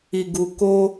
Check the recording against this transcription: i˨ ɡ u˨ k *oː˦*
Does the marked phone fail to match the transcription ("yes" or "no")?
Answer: no